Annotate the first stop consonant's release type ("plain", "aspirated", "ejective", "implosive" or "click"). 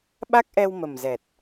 implosive